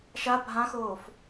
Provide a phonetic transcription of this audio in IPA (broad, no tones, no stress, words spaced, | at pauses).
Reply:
ʃa bʱãxoːf